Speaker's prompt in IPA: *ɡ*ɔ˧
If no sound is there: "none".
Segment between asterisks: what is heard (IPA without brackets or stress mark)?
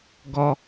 ɡ